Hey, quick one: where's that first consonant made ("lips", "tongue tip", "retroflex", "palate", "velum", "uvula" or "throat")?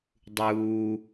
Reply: tongue tip